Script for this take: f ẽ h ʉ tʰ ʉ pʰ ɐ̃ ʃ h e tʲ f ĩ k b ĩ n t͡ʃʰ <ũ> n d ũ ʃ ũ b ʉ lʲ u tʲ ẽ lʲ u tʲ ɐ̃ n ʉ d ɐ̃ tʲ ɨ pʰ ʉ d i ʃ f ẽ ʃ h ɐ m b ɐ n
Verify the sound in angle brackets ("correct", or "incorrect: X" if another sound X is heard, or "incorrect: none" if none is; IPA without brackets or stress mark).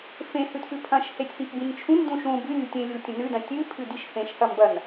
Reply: correct